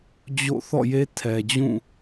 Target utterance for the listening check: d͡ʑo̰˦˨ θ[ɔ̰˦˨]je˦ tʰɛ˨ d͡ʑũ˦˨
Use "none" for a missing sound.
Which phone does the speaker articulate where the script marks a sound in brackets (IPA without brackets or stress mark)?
ɔ̰˦˨